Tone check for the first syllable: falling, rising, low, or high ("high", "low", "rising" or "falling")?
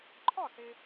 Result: falling